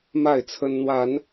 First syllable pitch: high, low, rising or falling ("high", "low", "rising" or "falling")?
falling